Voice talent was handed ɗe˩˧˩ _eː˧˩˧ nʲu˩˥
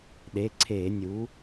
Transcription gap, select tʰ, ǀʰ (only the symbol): ǀʰ